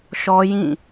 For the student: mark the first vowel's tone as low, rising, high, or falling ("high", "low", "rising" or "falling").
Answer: high